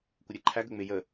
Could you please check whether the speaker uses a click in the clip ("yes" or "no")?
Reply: yes